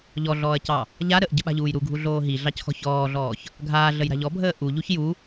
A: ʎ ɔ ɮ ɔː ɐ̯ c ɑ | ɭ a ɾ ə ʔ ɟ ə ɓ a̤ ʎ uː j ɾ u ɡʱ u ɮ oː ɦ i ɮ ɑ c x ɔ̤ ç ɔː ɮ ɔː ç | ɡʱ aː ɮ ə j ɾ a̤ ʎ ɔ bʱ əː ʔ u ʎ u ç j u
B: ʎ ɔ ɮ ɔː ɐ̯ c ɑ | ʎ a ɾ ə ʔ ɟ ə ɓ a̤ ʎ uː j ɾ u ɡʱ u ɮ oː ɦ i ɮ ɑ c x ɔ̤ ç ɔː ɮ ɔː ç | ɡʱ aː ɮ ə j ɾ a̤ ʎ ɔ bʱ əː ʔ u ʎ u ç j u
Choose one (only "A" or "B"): B